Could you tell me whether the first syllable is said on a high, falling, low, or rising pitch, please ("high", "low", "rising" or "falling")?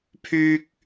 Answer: high